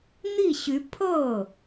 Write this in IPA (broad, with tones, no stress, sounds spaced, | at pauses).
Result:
n̪ i˥˩ ɕ y˧˥ pʰ ɤ˥˩